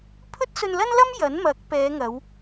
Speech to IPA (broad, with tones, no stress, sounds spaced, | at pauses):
pʰ ɵ˥ t̚ s ɵ˧ n l ɐ˥ n l ɐ˥ m j ɐ˨˥ n m ɐ˨˥ k̚ p ɛː˨˧ ŋ ɐ˨˧ w